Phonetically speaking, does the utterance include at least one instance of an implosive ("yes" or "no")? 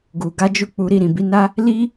no